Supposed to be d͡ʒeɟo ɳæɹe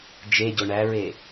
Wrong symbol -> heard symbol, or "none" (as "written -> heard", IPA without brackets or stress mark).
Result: none